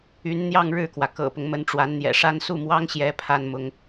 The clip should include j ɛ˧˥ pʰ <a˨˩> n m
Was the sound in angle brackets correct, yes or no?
no